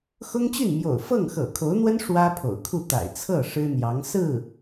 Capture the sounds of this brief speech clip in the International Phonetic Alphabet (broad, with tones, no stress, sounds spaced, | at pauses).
x ʊ˥ ŋ t͡ɕ y˥˩ n m j o̰˨˩ ʊ̯ f ɤ˥˩ ŋ x ɤ̰˨˩ kʰ o˧˥ ʊ̯ n̪ w ə˥ n ʂ w ä˥ pʰ o̰˨˩ ʊ̯ kʰ u˥˩ t̪ a̰˨˩ ɪ̯ t͡sʰ ɤ˥˩ ʂ ɻ̩˥ n̪ j ɑ˧˥ ŋ s ɹ̩˥˩